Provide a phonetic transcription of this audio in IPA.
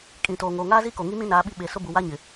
kʼ ĩ˨ t oː˨ ŋ oː˨ ŋ aː˦ z i˦ k o˨ ŋ i˦ m ĩ˦ n aː˨˦ ɓ i˦ ɓ e˨ s ʊ˦ b u˨ w a˦ ɲ ɪ˨

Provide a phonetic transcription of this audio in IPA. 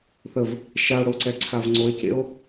θ ə v | ʃ a o̯ ɽ o ǀ ɛ ǀʰ a v ŋ͡ǀ o e̯ c ḛ o̯

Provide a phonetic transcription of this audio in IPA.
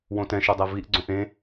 w õ t ɛ̃ ʃ o dˤ ɛ v i ʔ ɡ͡ǀ õ ʔ ẽ

